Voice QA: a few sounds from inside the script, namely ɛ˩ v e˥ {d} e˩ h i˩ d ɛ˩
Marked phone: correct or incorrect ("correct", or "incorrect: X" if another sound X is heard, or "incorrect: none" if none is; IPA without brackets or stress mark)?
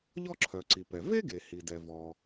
incorrect: ɡ